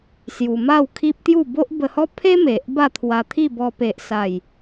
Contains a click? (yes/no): no